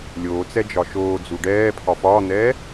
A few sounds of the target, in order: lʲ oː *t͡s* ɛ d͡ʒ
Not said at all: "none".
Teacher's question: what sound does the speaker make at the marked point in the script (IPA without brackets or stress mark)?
t͡s